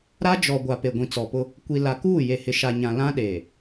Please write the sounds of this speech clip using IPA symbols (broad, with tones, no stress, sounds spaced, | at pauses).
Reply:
ɾ a˦ d͡ʒ ɔ˨ ɡʷ a˨ p e˨ ɡʷ ĩ˨ t͡s ɔ˨ p ʊ˦ | kʷ i˨ l a˨ k uː˦˨ j e˨ h ɪ˨ ʃ a˨ ɲ ã˨ l ã˦ ɗ eː˨